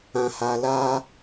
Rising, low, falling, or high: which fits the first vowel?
high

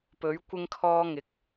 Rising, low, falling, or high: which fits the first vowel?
rising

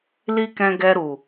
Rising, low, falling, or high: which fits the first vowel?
high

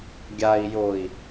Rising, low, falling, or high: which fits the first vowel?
low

